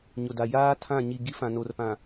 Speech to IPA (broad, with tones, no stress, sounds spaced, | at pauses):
ɲ ʊ˨ d a˨ j aː˦ tʰ ã˦˨ ɲ i˨ ɡ i˦ f ã˨ n o˨ r p ã˨